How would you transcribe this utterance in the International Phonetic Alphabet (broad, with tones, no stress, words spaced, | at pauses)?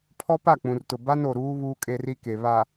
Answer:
pʰɔ˦pa˦˨k͡pũ˨rtʊ˨ ba˦n o˨ɾuː˦ βuː˦kʼe˦ri˦ke˨ βa˨